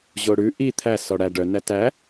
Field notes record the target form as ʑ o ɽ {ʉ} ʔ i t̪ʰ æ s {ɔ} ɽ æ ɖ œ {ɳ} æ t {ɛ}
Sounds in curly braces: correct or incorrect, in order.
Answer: correct, correct, incorrect, incorrect

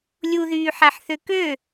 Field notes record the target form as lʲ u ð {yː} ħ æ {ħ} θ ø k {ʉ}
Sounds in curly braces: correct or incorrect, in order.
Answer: correct, correct, incorrect

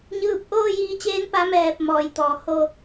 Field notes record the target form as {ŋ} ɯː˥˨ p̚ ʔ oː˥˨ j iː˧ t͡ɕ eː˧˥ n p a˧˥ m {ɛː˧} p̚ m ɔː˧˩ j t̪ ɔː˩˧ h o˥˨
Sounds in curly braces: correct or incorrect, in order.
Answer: incorrect, incorrect

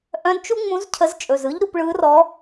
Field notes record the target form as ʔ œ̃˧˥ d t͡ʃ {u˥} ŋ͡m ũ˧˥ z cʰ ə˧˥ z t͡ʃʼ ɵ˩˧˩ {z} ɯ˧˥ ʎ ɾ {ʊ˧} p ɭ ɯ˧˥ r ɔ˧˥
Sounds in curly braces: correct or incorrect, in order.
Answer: correct, correct, incorrect

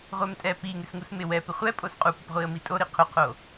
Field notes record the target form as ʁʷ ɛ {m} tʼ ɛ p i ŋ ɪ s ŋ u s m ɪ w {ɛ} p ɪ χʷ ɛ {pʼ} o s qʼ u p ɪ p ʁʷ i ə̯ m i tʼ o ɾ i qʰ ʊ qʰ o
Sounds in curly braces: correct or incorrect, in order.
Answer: correct, correct, correct

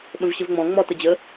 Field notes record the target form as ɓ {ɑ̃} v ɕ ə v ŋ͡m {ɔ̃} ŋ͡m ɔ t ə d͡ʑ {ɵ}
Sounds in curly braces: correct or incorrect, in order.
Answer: incorrect, correct, incorrect

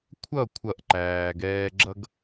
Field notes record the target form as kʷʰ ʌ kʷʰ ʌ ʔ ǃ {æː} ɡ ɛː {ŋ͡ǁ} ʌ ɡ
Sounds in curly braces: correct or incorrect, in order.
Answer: correct, incorrect

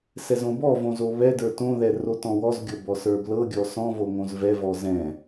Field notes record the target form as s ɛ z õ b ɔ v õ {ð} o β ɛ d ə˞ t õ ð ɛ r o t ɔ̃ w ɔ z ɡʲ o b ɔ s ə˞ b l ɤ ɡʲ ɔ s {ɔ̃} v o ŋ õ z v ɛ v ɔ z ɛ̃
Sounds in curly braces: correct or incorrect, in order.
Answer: incorrect, correct

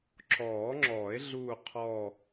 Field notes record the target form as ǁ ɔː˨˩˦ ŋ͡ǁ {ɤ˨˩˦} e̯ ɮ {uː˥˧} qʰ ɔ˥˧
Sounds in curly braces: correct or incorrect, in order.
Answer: incorrect, correct

